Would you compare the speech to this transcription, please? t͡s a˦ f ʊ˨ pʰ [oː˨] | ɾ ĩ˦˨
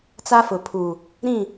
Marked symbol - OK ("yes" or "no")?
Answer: no